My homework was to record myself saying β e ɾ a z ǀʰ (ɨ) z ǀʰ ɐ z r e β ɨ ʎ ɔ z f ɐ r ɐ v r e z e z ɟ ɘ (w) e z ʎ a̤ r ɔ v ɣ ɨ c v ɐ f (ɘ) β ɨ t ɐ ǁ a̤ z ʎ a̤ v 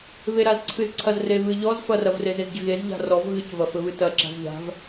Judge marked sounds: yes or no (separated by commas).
yes, no, yes